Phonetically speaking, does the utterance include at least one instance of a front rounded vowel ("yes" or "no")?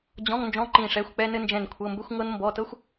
no